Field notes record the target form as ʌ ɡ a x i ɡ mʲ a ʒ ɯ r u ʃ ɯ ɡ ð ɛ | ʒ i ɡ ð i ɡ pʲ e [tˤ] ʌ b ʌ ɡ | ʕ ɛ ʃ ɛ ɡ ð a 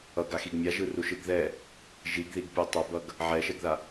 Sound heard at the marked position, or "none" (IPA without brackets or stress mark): tˤ